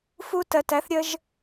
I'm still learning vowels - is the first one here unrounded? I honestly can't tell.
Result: no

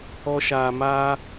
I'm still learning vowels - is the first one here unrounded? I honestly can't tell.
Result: no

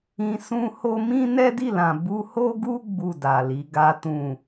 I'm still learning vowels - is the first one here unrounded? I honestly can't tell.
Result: yes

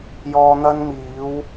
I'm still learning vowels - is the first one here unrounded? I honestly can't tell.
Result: no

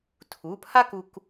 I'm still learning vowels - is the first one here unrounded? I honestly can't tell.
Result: no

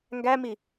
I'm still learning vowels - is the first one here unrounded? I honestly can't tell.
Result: yes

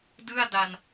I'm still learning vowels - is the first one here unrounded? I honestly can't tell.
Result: yes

